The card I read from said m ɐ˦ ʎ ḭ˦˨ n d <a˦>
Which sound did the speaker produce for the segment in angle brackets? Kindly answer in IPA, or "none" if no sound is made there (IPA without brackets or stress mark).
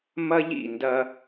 ɐ˦